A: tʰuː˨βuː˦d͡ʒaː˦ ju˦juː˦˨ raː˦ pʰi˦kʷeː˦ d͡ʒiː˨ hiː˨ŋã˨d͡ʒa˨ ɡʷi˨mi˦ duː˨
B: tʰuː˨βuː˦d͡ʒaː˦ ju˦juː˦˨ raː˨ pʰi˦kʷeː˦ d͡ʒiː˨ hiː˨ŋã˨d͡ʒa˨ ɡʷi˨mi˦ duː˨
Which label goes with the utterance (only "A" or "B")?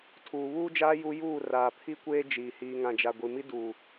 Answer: B